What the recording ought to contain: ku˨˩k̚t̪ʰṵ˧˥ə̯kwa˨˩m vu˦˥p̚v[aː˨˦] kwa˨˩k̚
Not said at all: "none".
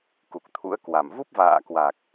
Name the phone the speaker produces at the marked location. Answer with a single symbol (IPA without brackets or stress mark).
a̰ː˧˨